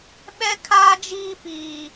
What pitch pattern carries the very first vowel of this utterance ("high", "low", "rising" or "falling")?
high